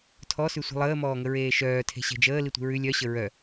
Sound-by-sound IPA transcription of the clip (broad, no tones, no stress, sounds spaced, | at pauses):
tʰ ɔ s ʉ sʷ i̤ lˠ əː m ɔː ŋ ə ɹ eː ʃ œː tʰ e̤ ɕ e̤ d͡ʒ əː l i tʷ i̤ ɹ ʉ lʲ œ ɕ ə ɹ œ